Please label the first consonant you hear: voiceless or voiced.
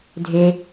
voiced